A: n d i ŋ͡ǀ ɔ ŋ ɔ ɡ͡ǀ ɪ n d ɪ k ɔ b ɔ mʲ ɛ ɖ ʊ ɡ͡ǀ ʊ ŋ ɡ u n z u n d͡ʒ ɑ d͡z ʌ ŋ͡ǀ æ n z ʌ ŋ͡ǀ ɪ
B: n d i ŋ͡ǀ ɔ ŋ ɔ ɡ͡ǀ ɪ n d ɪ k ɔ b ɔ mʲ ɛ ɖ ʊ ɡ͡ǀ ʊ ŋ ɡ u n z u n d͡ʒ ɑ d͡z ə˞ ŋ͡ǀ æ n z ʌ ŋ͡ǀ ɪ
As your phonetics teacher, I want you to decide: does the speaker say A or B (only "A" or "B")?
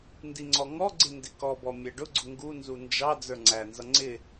B